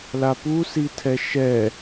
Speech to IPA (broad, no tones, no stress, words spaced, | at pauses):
lapu sitʰɛʃɛ